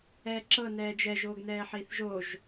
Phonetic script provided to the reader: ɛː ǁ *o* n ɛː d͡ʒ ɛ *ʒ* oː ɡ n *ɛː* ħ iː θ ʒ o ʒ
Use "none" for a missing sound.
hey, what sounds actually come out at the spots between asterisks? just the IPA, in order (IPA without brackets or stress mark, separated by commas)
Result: ɤ, ʒ, ɛː